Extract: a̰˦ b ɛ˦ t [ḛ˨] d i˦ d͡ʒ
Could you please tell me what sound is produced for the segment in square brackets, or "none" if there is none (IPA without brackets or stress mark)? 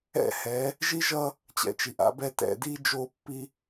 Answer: ɛ̰˨